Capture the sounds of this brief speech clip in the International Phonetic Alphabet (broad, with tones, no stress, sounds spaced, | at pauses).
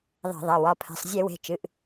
ðˤ ɛ̤˧˩˧ ðˤ ɛ˩˧˩ w ɒ˩˧˩ pʰ ɛ̤˩˧˩ sˤ zʲ e˧˩˧ w e̤˩˧˩ t͡ʃ ɨ˩˧˩ ʔ